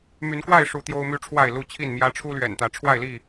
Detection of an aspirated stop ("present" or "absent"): present